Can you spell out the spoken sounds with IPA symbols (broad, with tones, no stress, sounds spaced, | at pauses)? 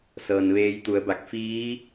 s ɤː˩ n ʋ eː˧ j t̪ u˩˧ ə̯ b a˧˩ k̚ f iː˧˥